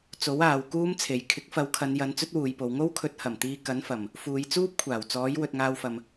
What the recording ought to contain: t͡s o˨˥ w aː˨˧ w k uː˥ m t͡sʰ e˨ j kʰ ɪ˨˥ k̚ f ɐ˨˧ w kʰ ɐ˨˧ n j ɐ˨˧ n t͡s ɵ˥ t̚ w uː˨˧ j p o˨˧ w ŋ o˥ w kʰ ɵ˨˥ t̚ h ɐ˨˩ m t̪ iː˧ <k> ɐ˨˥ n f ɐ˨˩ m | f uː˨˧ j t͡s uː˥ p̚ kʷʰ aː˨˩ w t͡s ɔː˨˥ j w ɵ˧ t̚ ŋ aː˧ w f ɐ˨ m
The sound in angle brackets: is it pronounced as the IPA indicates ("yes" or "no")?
yes